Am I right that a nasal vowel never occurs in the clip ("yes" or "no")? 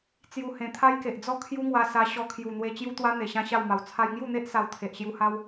no